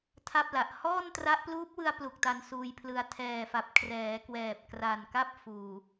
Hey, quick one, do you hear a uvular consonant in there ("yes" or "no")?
no